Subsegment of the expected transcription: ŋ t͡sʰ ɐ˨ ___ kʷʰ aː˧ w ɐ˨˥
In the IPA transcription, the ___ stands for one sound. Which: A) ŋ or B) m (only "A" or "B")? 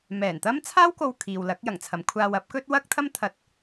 B